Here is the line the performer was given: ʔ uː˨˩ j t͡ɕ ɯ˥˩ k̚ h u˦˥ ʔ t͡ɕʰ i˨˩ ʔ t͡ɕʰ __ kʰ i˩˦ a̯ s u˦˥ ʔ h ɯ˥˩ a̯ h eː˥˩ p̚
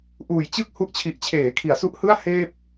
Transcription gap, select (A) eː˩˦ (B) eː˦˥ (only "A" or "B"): A